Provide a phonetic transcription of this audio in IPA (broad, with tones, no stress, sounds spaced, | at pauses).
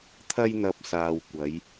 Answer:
t̪ʰ ɐ˧ j n̪ ɐ˨ p̚ s aː˨ w kʷ ɐ˨˧ j